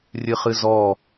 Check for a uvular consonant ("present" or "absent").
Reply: present